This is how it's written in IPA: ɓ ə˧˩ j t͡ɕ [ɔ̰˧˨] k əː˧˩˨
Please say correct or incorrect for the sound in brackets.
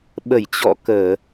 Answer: correct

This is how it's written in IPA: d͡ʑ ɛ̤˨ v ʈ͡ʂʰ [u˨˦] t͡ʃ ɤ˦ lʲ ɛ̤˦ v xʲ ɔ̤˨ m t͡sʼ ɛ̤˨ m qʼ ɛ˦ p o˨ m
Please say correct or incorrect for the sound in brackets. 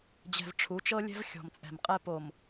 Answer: correct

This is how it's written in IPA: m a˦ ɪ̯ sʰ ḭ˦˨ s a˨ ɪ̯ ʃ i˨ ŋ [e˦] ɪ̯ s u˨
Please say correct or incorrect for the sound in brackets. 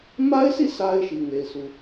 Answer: incorrect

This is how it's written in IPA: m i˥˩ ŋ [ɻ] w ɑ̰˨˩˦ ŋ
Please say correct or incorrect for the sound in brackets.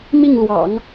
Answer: incorrect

